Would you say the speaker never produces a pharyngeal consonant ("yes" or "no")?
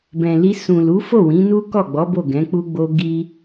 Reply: yes